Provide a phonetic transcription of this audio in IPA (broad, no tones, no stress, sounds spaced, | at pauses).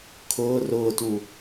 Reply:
kʰ ʊː r ʊː t u